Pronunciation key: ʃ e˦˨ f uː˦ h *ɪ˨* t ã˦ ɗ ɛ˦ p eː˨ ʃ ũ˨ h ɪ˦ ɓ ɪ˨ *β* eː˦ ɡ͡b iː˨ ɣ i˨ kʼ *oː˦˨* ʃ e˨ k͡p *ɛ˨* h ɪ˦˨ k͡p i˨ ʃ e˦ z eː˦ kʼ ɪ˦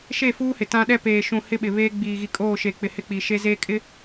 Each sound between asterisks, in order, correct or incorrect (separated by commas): correct, correct, correct, incorrect